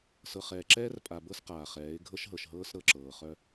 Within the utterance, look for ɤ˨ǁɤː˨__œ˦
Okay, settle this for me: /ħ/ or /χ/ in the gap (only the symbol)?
χ